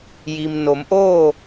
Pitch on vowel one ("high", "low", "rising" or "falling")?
low